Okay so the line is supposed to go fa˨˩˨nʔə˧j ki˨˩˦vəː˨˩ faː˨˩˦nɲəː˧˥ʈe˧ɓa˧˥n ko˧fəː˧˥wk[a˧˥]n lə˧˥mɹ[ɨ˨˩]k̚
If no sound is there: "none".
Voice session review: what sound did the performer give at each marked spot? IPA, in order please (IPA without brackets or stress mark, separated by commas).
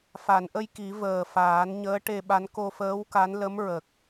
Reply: a˧˥, ə˨˩